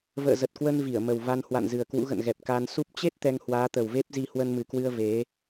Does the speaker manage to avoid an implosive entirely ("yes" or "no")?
yes